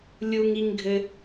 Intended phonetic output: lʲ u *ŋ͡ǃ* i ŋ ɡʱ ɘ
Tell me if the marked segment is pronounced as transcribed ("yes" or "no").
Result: no